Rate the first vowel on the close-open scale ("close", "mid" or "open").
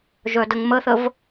mid